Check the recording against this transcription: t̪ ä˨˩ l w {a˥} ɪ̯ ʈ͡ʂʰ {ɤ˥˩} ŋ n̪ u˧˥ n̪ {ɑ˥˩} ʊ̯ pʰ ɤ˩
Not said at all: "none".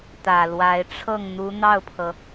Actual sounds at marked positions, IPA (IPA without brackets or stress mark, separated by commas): a˧˥, ɤ˥˩, ɑ˥˩